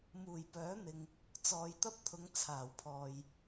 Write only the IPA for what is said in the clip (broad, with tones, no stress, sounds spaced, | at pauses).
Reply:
m uː˨˩ j p œː˨˥ n̪ ɪ˨ ŋ | t͡s ɔː˨ j t̪ ɐ˥ p̚ t̪ʰ ʊ˨˧ ŋ t͡sʰ aː˨˩ w pʰ ɔː˨ j